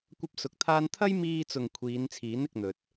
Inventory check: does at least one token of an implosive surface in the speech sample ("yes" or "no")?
no